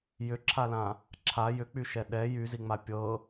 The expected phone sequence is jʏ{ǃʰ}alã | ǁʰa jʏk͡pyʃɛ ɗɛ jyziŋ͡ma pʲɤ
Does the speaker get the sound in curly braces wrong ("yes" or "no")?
yes